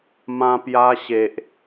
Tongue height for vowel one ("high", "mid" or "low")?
low